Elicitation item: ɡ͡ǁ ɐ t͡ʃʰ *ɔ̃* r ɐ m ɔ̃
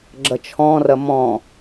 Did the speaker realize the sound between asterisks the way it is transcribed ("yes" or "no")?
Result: yes